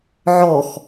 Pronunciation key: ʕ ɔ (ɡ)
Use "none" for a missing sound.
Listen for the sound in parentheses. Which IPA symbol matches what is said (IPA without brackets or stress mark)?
x